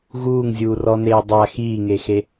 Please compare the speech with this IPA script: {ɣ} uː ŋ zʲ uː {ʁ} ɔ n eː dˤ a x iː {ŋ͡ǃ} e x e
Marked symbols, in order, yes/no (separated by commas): yes, no, no